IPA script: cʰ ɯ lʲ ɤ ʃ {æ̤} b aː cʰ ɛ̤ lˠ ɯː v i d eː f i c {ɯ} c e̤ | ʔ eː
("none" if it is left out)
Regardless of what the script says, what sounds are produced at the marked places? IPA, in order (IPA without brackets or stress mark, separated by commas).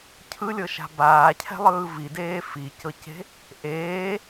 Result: a̤, ɤ